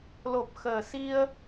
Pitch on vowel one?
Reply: low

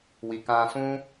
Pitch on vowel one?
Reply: low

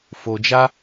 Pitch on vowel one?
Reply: low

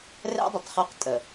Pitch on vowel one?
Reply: high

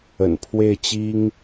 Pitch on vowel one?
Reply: low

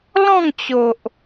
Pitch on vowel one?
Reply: falling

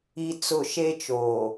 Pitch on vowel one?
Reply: high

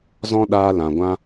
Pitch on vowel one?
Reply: high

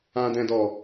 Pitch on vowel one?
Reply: low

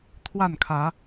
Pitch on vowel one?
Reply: falling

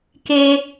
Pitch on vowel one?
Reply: high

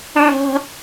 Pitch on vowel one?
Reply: high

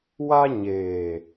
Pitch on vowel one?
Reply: high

